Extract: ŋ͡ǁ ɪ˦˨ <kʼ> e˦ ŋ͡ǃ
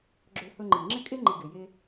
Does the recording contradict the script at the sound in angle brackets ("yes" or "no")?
no